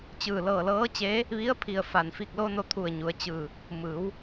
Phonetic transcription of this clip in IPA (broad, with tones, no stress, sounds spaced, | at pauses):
t͡ɕ ɯː˧˩ l ɤː˧˩ l ɤː˧˥ t͡ɕ eː˧˥ | ʋ i˧˥ ə̯ pʰ i˧˩ ə̯ f a˩ n f i˧˩ k̚ l o˧ n o˧ t̪ʰ u˧˩ ə̯ ɲ u˩˧ ə̯ t͡ɕ ɯː˧˩ | m ɯː˩˧ w